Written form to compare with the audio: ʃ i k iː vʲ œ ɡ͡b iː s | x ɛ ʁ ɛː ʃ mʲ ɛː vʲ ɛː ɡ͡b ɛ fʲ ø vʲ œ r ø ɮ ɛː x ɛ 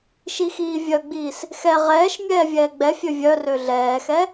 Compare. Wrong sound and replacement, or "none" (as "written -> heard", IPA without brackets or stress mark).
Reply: k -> x